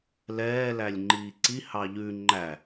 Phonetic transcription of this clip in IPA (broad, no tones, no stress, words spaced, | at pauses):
lɛː lælʲŋ͡ǃiːǀi hɑʎʉ ŋ͡ǃæ